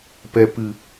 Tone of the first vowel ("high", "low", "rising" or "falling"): low